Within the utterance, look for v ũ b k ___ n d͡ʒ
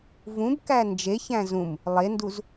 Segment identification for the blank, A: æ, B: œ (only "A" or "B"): A